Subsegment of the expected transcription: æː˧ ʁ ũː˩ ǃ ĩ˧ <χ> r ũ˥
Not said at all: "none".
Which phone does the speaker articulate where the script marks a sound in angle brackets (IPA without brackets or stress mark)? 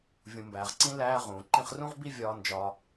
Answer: χ